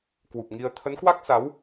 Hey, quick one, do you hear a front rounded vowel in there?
no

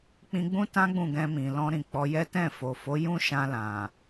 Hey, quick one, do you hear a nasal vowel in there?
yes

